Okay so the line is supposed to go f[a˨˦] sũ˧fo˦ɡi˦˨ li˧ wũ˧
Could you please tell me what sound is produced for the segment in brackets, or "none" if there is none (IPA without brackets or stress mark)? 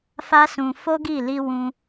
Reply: a˦